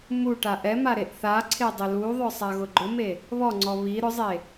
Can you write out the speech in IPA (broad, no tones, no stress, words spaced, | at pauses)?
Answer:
mu ʈaʔɛma ɾeʔθaǀʰe dˤɪluðˤʊ sˤaɣʊɡ͡ǃʊme | βɔŋ͡ǀɔ βi ɾʊzˤe